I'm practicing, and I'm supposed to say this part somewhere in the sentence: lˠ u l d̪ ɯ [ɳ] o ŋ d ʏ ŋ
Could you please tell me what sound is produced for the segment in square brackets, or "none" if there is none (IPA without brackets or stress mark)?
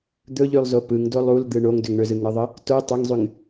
ɳ